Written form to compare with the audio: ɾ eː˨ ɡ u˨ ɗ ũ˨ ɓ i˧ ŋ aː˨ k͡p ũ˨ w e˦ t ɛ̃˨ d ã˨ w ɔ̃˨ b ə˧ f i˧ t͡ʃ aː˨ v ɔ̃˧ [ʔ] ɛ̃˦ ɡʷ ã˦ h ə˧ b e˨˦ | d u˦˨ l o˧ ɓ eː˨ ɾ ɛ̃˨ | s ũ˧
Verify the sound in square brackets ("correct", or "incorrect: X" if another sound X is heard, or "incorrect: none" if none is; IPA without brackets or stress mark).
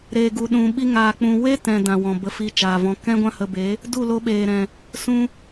incorrect: k